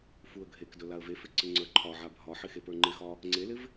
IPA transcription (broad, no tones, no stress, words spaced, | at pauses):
fuə̯ɡʱekdɵ laə̯vefɪ ǀɪŋ͡ǀə˞ǃʰɒʕa bʱɒħɪ xepə˞ŋ͡ǃɪxɒ | ŋ͡ǀelɪv